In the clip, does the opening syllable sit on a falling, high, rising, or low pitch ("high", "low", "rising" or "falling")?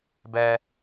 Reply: low